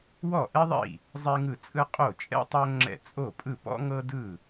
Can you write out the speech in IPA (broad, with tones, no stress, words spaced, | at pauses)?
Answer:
wɔ˥˩ʔɛ˥ðˤḭ˥˩ | zˤe˥ŋɯ˥˩t͡sʼɯ˥ qʼo˥˩t͡ʃʼɛ̰˥ tˤo˥ŋ͡ǁɛ̰˥˩ t͡sʼo˥˩pʼɯ˥˩pɔ̰˥ ŋɤ˥dɯ˥˩